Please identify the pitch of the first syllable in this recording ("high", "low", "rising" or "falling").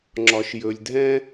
low